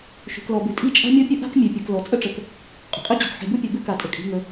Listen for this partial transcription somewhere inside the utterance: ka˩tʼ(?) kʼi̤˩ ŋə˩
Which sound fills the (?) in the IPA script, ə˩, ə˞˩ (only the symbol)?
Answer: ə˩